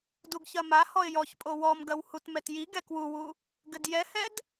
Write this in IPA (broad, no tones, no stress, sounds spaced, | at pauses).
d u ɡ ç ɐ m a h ɔ ɪ̯ j ɔ ç pʼ o w ɔ m ɡ ɐ w h u t m ɛ t j i ɡ ɛ k w u w u | ɡ ɘ d j ɛ h ɛ d